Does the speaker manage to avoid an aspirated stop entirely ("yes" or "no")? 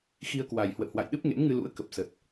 yes